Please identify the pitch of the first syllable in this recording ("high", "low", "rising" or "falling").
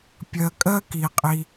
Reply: low